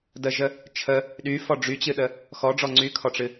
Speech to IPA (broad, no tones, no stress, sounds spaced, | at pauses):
d ə ʒ ə | t͡ʃʰ ə | ɗ y f ɔ ɖ͡ʐ y t͡ɕ ɨ ɗ ə | x ɔ ɖ͡ʐ ɔ ŋ͡ǀ y kʰ ɔ ʈ͡ʂ ɨ